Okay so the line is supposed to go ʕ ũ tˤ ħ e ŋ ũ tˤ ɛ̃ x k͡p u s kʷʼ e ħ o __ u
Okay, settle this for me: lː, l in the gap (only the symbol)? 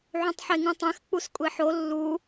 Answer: lː